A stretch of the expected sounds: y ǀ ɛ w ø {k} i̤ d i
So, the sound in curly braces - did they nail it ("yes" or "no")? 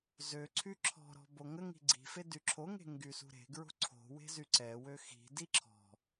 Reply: no